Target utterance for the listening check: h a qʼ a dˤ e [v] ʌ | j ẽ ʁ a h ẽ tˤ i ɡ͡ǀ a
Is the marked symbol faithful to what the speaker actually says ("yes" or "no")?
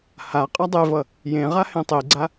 yes